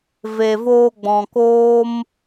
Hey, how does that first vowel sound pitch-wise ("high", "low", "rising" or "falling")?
low